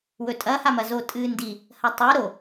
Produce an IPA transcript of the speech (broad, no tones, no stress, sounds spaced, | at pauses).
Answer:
w ɵ tʼ ɐ h a m ɐ z o tʼ ɨː n d i | h ɐ tˤ ɨ ɾ o